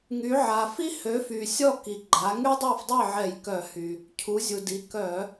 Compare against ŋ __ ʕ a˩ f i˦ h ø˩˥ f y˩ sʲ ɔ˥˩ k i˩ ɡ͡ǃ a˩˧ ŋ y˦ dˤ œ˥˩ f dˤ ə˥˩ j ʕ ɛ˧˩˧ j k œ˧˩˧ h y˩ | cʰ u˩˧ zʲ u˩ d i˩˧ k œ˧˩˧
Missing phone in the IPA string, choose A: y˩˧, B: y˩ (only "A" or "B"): A